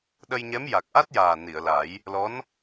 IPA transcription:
ɗ ə˧ j ɲ ɛ˧˥ m j a˨˩ k̚ ʔ a˦˥ t̚ j aː˨˩ n i˨˩˨ ə̯ l a˨˩˦ j | l ɔ˧˥ n

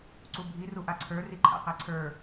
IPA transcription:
ǀ u bʱ i r u ʔ a ǀʰ ə˞ r i ǃʰ a̰ q æ ǀʰ ə˞

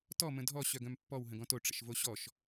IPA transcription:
t ɔ m ə̃ dʱ ɔ ɕ œ ɡ œ̃ m pː ɔ w ɦ ə̃ ɡ ɔ̃ t o ʈ͡ʂ ə̰ ʃ v o ɕ ɔ ʃ

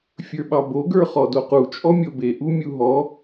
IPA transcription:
fʲ ə˞ ɓ ɑ b o ɡ ə˞ χ ɔ d o q u t͡ʃʼ ɔ mʲ o b e ʔ u mʲ u ɦ ɔ

